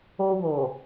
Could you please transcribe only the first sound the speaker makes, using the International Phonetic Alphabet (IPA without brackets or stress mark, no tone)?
o